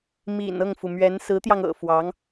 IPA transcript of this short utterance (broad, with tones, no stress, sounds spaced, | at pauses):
m ḭ˨˩ n ɤ˥˩ ŋ f u˩ m ɥ ɛ˧˥ n s ɹ̩˧˥ t̪ j ɑ˧ ŋ ɤ̰˨˩ f w ɑ˧˥ ŋ